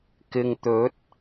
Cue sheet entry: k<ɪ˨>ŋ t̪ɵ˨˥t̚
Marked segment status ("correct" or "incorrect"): correct